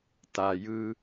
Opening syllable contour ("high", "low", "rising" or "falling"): low